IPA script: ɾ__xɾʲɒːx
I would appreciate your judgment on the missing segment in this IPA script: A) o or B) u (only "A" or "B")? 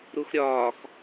B